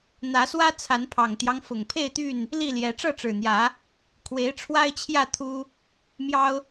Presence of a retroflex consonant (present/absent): present